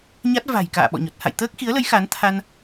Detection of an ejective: absent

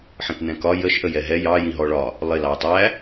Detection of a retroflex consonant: present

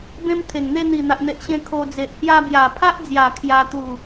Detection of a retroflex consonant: absent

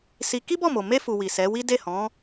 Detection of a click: absent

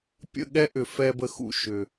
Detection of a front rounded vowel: present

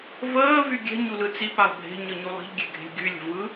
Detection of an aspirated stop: absent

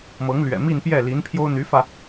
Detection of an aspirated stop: present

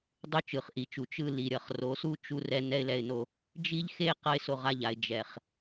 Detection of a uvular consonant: present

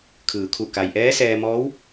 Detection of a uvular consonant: absent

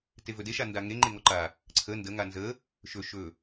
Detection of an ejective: absent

